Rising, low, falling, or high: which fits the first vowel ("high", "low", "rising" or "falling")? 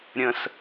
high